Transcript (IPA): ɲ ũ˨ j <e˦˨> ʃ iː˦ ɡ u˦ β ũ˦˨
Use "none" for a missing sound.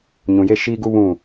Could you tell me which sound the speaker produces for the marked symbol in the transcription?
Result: e˦˨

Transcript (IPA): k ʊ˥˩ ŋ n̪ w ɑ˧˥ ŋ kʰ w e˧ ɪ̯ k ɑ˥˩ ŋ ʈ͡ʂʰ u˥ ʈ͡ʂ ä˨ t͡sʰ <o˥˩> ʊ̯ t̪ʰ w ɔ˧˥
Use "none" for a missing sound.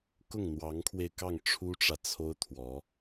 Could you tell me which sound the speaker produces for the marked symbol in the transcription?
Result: o˥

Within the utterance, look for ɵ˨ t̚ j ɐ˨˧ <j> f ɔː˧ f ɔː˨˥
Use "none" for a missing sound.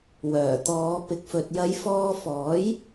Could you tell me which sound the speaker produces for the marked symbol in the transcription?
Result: j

